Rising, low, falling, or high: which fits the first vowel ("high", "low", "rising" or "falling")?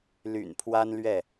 low